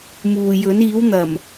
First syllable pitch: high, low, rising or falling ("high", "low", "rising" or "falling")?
low